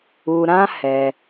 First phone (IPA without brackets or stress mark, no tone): u